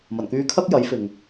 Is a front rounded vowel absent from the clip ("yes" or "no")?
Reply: no